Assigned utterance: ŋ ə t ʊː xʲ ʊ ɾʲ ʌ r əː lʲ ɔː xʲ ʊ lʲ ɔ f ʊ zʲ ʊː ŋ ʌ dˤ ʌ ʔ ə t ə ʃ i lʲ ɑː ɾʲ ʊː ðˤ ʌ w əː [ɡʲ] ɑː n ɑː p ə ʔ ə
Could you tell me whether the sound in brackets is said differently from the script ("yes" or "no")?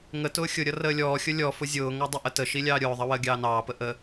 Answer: no